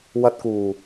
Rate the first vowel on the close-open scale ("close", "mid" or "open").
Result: open